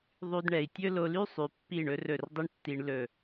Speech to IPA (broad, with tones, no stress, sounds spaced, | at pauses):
ðˤ y˧ d ɳ ɛ˨ i̯ tʲ ɵ˦ l o˧ l y˦ sˤ y˨ pː i˦˨ ɳ ɵ˦ r ɵ˦˨ r dˤ i˦ ɳ tː i˧ ɳ l ɵ˦˨